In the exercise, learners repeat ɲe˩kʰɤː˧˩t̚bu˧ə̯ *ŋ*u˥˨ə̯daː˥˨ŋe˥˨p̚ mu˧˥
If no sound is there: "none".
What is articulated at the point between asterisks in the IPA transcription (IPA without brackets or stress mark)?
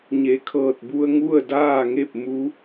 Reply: ŋ